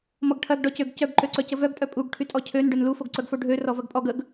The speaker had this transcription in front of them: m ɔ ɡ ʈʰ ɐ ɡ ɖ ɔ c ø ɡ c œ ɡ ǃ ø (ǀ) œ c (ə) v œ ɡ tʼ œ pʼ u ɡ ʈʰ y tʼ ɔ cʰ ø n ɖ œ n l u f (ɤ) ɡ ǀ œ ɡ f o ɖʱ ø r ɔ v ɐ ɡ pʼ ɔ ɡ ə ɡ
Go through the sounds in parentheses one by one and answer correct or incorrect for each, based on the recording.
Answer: correct, correct, incorrect

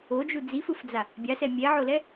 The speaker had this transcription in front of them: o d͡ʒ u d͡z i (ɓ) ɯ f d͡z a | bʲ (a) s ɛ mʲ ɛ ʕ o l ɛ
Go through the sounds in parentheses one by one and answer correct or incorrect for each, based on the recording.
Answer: incorrect, correct

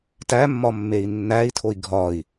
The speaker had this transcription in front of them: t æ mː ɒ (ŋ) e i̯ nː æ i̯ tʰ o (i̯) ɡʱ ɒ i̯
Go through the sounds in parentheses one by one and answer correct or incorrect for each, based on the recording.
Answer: incorrect, correct

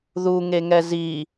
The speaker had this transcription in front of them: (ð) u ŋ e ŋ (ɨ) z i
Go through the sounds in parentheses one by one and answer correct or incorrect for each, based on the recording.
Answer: correct, incorrect

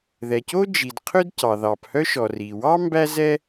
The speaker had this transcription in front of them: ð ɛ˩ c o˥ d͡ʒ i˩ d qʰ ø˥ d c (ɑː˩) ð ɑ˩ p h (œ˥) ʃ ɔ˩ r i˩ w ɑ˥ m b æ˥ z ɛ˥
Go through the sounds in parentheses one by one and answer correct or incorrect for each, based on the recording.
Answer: incorrect, correct

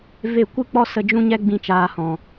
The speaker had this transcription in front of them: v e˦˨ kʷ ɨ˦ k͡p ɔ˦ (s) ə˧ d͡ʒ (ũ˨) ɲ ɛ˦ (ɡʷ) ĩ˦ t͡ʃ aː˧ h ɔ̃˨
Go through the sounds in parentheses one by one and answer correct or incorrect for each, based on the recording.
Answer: correct, incorrect, incorrect

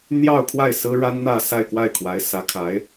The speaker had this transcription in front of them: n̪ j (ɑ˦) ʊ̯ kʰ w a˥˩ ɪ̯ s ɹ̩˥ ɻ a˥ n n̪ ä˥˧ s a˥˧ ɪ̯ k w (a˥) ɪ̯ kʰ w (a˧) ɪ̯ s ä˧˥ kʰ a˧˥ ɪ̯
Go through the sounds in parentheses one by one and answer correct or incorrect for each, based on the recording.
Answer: incorrect, incorrect, incorrect

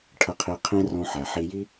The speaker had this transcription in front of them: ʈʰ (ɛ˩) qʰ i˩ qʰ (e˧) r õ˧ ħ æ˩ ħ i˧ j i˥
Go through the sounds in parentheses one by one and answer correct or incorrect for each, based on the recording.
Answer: incorrect, incorrect

